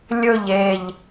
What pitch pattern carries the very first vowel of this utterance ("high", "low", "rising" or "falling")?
falling